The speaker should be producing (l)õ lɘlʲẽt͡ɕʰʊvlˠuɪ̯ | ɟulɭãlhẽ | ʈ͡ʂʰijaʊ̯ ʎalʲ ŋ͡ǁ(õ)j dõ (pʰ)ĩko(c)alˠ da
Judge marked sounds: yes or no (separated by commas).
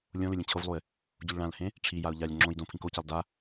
no, yes, yes, yes